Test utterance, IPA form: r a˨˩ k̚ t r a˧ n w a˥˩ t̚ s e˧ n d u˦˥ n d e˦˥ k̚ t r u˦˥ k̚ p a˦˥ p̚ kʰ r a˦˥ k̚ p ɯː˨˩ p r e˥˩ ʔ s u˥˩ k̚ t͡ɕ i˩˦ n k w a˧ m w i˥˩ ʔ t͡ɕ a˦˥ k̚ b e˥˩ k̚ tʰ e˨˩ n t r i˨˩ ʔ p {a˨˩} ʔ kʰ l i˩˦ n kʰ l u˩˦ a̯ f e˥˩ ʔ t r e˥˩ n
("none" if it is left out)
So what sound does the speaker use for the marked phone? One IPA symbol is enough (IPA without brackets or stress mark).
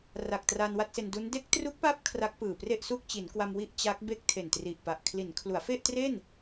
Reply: a˨˩